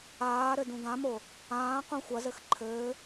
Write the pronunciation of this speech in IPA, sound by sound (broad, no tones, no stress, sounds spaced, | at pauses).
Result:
aː ɾ ɘ d ũ ɡ ã m o | ãː q ũ xʷ ɐ z ɘ x ǃʰ ɘː